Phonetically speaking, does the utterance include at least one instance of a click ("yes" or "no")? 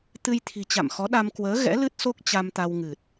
no